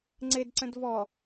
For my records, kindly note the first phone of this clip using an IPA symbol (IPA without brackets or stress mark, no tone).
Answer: ŋ͡ǀ